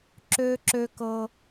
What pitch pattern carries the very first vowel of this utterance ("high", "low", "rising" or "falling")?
high